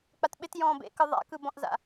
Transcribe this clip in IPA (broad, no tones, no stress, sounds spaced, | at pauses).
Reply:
k͡p a t ɓ ɪ t j ɔ̃ː b ḛ k ɯ ðˤ a̰ k ɯ b ɔ̃ ʔ z a̰